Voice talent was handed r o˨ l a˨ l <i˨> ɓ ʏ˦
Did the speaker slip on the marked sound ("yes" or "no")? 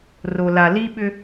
yes